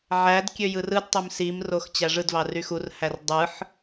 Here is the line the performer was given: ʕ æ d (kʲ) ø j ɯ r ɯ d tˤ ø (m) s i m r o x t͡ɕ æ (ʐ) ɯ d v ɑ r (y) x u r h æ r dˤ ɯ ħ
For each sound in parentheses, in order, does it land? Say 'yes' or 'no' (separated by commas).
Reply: yes, yes, yes, yes